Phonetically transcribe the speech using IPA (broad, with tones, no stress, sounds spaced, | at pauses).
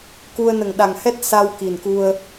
k u˧ ə̯ n ə˨˩ ŋ ɗ a˨˩ ŋ h ɛ˦˥ t̚ s a˧ w k i˨˩ n k u˧ ə̯